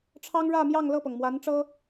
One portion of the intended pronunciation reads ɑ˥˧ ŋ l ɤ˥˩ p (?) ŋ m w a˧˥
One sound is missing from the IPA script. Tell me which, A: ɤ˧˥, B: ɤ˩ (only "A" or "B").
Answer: B